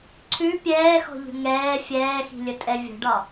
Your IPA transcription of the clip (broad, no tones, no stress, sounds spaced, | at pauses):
ǀʰ ʉ pʲ ɛː x ɔ̤ ʎ ə̤ ŋ ɛː fʲ ɛː x i̤ lʲ ə tʼ ɛ vʲ ə̤ ɖ ɒ